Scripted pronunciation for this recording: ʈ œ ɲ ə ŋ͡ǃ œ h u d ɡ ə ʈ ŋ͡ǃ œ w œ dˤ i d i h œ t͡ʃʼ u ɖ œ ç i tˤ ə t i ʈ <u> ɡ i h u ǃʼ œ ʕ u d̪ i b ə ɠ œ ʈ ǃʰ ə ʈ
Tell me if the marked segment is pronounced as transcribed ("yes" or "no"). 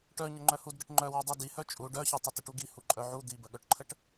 yes